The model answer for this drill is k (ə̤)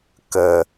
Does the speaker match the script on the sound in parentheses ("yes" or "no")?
no